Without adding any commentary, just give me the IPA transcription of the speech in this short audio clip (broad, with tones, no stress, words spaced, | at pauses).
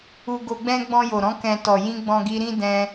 u˦ ɡo˧ɡ͡bɛ̃˦ ɡ͡bɔ̃˧jo˨ɾɔ̃˨˦ kɛ̃˧ tɔ˨jĩ˧ ɡ͡bɔ̃˧ɡi˧ɾĩ˦dɛ̃˧